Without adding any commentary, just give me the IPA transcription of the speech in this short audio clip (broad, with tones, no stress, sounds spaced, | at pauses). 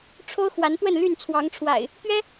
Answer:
ʈ͡ʂʰ o˦ ʊ̯ x w a˨˦ n t̪ w ə˥˨ n l y˥˨ n t͡sʰ w ɑ˨˦ ŋ ʈ͡ʂʰ w a̰˨˩ ɪ̯ | t̪ ɥ ɛ˦